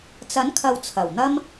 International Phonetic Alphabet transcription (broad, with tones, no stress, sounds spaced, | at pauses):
t͡s ɐ˨˥ n kʰ ɐ˨ w t͡sʰ ɐ˨˩ w n̪ ɐ˥ m